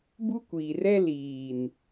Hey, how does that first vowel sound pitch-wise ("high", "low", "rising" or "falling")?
high